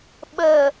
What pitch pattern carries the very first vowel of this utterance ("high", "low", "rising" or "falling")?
low